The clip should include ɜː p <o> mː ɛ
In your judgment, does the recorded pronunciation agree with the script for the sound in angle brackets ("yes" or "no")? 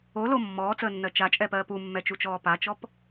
no